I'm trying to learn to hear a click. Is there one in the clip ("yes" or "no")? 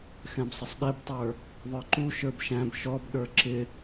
yes